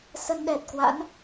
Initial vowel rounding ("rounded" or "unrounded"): unrounded